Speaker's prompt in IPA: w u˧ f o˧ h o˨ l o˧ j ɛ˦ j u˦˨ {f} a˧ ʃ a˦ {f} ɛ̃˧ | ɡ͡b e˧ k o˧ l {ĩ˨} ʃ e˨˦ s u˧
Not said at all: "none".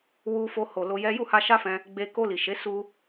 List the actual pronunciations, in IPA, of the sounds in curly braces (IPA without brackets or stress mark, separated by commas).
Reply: h, f, i˨